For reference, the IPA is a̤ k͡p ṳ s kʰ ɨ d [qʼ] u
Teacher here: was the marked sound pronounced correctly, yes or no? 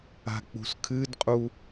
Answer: yes